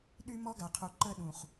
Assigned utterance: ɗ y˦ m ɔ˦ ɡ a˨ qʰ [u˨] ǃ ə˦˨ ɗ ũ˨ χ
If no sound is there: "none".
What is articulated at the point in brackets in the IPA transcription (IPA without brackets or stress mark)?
u˨